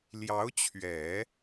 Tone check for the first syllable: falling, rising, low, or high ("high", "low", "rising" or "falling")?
rising